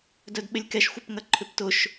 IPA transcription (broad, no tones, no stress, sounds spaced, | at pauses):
d œ d ɓ ɪ lʲ k ɛ ʃ xʷ ɪ p ŋ ɐ ǃʰ ʏ p t ʊ ʃ